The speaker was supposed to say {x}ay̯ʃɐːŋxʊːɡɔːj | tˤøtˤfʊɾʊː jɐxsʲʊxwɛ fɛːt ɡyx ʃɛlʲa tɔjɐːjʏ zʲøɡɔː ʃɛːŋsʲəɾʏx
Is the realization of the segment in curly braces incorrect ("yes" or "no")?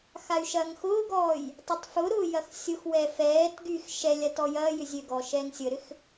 no